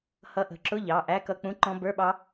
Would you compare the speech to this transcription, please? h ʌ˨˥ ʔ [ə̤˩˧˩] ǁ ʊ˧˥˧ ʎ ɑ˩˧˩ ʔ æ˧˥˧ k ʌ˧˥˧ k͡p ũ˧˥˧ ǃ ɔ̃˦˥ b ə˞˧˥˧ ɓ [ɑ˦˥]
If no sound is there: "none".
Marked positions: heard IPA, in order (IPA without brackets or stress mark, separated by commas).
ə̤˩˧˩, ɑ˦˥